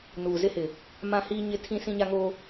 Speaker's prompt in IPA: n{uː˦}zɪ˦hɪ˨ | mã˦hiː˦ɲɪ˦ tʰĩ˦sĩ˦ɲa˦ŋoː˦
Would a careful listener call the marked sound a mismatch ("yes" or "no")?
yes